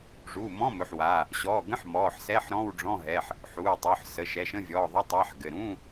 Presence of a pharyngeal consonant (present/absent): present